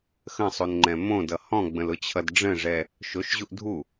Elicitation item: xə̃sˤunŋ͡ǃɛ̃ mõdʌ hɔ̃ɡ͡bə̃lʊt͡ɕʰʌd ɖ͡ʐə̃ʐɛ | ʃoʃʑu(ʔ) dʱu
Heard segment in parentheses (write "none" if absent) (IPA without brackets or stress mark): ʔ